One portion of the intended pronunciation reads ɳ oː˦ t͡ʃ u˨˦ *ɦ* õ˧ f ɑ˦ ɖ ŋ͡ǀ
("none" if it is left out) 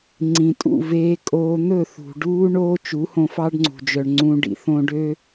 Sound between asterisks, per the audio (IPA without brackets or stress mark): h